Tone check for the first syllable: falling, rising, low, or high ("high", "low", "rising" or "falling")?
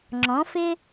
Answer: rising